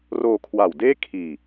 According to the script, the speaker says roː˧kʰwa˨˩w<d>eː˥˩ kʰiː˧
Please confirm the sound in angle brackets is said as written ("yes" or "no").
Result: yes